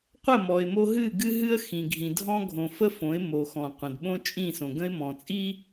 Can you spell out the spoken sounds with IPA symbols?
qʷ ə˦˨ m ɔ˨ ɪ̯ m o˦ ɦ ɨ˦˨ ɡ ɨ˦ ɦ ɨ˦ ə̯ x ĩ˨ ɡʱ ĩ˨ dʱ ɔ̃˦ ɡʱ õ˨ f ə˦ f õ˨˦ ɪ̯ m o˨ x ɔ̃˨ qʷ ə̃˨ d ɓ õ˦ t͡ʃʼ ĩ˦˨ s õ˨ ɡ ə̃˦ ɪ̯ m ɔ̃˨ t͡sʼ i˦

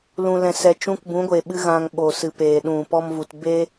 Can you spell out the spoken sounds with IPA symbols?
l ũ˧ l ɛ̃˧ s ɛ˧ t͡ʃ ũ˧ k b ũ˨˦ ɡʷ e˨ ɓ ɨ˧ ɣ ã˧ ŋ ɓ o˨ s ɨ˨ p eː˨ ɗ ũ˨ p ɔ˦ m v u˧ t b e˦

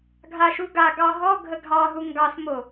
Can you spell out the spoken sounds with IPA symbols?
ɡʱ a ʃ u ɡ a ɡ ɑ ɦ ɔ ɡʱ ə ɡʱ ɑ ɦ u ŋ ɡ ɑ s m o

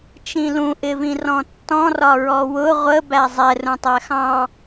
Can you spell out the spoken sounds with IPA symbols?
t͡ʃ ĩ l ũ ʔ ɪ v ĩ r ɔ̃ tː ɔ̃ r ɒ ɹ ɔ w ʊ ʁʷ ə b æ zˤ ɛ r ũ tˤ æ x ɑ̃

